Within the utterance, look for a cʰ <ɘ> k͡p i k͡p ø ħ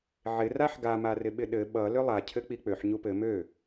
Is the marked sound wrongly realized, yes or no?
no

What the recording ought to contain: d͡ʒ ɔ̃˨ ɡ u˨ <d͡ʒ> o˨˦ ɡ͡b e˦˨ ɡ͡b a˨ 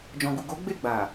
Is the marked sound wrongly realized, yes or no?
yes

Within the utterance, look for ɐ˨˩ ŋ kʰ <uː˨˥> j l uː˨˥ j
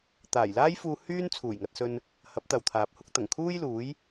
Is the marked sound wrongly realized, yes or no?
yes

